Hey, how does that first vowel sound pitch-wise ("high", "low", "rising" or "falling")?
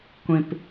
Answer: low